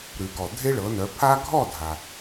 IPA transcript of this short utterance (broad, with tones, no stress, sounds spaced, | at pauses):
ɾ ʉ˩ k ɔ˩ dʱ e˦ ɭ ɤ˩˧ n œ˩˧ pʰ a˦ ɡʱ ɔ˥˨ dʱ a˩